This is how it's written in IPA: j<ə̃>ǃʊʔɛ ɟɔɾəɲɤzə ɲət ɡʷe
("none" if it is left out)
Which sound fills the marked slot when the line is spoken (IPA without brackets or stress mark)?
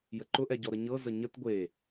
ə